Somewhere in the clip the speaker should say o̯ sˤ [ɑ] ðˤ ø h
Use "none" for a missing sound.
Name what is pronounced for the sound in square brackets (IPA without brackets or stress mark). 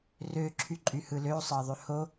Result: ɑ